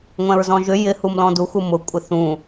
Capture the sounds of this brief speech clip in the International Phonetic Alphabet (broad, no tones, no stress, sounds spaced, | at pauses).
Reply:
ŋʷ ɛ̃ ɹ z ɔ̃ ʒ ʏ j ɪ h u m l ɔ̃ d u x u m ʊ kʷʼ ɪ θ ũ